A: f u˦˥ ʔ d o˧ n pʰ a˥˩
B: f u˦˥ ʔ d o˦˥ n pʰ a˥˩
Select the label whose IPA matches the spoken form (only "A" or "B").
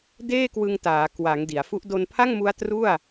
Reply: A